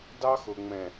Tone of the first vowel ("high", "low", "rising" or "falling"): high